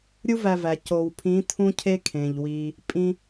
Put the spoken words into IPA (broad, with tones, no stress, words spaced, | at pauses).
ɾʲu˦ væ˧væ˨ co˨wpʰĩ˨˦ tʰũ˦cʰe˦ kʰẽ˨ʎwi˧ | pʼĩ˧